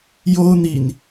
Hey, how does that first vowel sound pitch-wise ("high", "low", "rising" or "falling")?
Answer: high